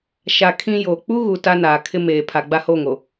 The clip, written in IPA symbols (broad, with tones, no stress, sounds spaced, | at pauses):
ʃ a˨ kʰ ĩ˦ j oː˨ k͡p u˦ ɣ u˨ t a˦ n aː˨ kʰ ɪ˦ m eː˨ pʰ a˨ ɡ͡b a˦ h o˦˨ ŋ o˨